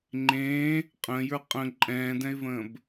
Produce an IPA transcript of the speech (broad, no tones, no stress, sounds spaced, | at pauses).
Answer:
ŋ͡ǃ ẽː | qʼ ə̃ː j ə˞ qʼ ə̃ ǃʼ ɛ̃ː d ɛ̃ ɪ̯ v ə̃ː b